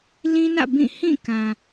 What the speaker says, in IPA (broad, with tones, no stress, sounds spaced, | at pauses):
l ĩ˦ n ä̰˦˨ b ĩ˦˨ h ĩ˦˨ k ã˨